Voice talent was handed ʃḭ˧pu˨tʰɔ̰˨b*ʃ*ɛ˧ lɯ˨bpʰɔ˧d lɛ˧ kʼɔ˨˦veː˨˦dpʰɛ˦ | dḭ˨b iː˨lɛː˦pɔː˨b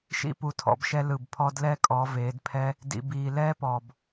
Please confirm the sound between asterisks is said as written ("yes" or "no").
yes